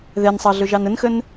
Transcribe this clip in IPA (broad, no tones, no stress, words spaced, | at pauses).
ðɛnsˤɑɮɵʒɑn ənxən